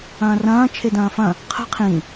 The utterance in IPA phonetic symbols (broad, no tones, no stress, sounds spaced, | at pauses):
ɐ̃ː r ɐ̃ː t͡ʃʰ e d ɐ̃ː f ɐ̃ | qʰ ə̤ qʰ ĩ